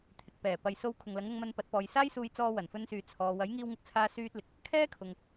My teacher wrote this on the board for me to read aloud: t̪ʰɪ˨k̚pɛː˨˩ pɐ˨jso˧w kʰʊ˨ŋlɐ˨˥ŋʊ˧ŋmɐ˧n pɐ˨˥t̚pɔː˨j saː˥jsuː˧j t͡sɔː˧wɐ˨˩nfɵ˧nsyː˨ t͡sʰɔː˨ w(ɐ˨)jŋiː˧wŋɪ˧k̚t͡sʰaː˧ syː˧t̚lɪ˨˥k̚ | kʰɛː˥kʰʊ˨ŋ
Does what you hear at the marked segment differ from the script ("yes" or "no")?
yes